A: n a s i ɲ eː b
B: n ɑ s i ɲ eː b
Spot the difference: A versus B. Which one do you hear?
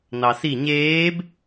B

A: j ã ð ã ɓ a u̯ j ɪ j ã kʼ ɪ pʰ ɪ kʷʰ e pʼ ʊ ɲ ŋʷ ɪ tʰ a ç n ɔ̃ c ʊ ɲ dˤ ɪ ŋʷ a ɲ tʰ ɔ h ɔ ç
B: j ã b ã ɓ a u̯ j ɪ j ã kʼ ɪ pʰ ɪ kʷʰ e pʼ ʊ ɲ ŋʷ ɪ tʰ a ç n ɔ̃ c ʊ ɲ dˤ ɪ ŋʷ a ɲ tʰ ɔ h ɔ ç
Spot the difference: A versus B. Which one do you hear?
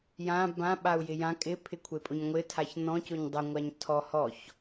B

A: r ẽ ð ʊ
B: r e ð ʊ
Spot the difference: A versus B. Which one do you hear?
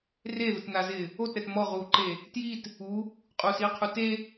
B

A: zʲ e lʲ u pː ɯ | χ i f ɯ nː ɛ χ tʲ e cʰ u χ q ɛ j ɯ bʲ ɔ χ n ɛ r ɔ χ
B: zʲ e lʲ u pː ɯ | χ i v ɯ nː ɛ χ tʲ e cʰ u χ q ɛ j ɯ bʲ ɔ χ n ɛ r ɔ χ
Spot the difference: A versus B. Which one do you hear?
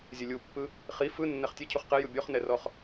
A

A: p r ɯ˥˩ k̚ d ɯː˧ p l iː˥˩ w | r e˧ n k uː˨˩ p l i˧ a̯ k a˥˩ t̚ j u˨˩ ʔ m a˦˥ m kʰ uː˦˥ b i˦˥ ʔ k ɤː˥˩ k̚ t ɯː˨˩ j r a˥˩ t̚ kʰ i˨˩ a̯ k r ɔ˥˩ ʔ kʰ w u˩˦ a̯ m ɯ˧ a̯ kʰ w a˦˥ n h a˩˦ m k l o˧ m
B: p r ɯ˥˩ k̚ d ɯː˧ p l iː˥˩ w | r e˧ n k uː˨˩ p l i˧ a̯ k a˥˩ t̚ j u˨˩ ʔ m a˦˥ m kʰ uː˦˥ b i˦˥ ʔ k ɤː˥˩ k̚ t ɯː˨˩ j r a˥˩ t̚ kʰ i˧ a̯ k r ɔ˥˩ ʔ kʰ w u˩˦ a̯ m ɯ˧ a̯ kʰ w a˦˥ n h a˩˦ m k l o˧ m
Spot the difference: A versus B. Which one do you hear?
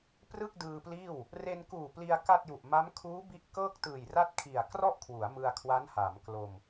A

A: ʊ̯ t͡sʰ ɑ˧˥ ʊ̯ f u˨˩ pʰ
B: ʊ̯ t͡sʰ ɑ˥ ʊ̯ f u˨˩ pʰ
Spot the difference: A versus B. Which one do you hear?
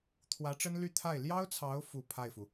A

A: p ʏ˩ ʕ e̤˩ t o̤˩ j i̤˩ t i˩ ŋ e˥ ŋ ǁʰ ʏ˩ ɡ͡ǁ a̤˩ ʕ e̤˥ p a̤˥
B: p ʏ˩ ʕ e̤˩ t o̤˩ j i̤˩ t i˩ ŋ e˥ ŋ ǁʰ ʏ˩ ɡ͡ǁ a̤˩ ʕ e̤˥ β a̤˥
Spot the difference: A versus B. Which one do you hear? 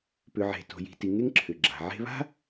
B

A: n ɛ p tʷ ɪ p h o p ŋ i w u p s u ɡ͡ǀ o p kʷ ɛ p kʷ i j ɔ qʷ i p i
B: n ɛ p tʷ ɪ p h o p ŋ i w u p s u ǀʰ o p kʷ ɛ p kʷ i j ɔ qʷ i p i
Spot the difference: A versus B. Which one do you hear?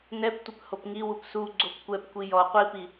A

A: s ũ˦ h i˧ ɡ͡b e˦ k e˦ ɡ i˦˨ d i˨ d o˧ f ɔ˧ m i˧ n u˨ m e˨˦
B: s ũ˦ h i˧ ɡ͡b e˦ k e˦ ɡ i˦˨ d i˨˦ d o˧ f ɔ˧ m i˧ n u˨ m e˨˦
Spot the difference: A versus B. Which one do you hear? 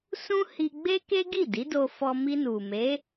B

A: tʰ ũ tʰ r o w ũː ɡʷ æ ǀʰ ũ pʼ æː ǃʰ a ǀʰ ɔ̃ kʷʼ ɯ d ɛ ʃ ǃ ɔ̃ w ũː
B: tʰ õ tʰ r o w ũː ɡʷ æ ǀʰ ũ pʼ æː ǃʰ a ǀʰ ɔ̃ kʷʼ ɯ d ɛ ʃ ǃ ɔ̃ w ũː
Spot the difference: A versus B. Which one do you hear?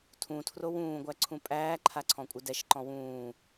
A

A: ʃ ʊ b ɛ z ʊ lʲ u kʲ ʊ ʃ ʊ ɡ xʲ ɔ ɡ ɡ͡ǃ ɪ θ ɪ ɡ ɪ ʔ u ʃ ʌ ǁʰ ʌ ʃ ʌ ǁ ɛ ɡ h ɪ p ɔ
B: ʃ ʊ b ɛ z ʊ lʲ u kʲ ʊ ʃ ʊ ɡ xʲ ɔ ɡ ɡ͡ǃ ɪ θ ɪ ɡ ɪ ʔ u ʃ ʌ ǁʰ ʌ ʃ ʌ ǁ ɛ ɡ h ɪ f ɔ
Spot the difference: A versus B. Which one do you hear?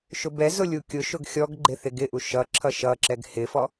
B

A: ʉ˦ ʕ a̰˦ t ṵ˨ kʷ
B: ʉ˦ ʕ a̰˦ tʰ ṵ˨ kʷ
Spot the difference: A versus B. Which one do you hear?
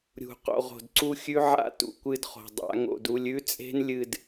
A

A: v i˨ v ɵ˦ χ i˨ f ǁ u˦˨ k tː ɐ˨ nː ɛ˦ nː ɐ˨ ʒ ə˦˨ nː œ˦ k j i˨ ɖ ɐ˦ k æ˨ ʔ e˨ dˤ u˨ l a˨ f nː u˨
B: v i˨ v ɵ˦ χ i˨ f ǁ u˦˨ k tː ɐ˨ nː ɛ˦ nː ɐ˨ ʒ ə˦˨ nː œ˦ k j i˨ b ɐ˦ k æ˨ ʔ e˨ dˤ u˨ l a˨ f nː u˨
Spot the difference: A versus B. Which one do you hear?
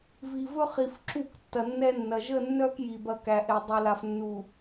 B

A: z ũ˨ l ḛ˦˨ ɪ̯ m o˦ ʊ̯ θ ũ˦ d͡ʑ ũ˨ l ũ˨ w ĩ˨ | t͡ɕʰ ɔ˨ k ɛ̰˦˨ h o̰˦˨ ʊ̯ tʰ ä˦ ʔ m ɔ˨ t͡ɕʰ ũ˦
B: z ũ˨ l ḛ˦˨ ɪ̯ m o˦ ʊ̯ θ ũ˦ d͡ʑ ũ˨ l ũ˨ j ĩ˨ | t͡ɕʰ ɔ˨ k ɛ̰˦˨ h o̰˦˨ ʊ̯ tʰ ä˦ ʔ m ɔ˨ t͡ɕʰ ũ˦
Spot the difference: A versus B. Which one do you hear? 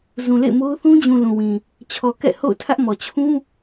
A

